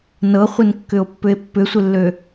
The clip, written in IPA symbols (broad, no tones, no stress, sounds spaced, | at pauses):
n ɤ χʷ ɪ n kː ʏ o̯ pː ʏ e̯ pː ʏ sʷ ɪ lː ø